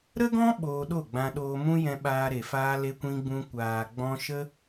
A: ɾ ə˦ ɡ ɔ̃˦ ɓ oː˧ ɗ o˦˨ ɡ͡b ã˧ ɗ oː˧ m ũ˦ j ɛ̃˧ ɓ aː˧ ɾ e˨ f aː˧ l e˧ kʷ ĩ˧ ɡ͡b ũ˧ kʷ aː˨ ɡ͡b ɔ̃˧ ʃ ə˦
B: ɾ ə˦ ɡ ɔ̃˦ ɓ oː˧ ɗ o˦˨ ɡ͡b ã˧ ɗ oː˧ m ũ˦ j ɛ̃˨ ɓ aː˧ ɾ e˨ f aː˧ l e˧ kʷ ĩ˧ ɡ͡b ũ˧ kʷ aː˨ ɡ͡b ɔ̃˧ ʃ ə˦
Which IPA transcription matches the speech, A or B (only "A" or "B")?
A